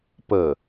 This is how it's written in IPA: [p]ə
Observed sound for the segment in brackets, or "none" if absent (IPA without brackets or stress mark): p